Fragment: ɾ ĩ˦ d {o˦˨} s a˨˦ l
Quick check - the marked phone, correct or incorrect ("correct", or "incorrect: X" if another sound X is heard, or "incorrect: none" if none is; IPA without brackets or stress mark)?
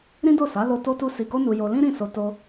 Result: correct